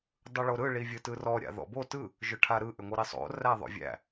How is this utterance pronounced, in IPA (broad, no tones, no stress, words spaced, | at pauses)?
dˤɯɭoɾɯ ɭivʲɯtɯrɔ ɾʲa̰ðɔ̰bo tɯ | ʒʏʈʰaɾɯ ʔʏŋʷɯɾisˤo̰ ræðˤo̰vʲæ̰